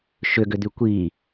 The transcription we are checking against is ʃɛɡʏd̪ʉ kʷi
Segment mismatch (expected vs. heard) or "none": ɛ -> ʏ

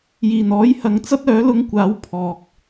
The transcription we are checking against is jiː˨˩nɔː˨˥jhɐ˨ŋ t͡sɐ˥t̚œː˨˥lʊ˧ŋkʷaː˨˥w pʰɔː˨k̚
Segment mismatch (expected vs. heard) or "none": none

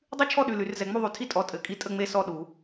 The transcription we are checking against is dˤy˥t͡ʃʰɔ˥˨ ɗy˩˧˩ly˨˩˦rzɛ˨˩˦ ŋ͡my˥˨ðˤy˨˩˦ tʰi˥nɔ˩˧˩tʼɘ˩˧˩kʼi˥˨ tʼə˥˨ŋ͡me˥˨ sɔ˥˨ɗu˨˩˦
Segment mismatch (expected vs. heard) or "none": n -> tʼ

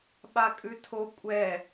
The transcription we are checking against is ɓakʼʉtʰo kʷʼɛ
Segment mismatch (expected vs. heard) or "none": none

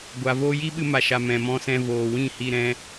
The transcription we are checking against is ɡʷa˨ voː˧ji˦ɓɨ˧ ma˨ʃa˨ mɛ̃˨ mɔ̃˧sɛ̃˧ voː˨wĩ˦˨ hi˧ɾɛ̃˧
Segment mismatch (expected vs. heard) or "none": none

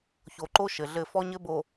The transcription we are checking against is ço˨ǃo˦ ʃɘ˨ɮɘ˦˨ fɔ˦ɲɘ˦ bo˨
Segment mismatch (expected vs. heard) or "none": none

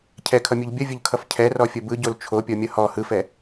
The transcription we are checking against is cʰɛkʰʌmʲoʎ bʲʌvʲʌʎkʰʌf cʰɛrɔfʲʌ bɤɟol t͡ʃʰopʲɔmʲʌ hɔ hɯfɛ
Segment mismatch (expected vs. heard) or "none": ɤ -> ɯ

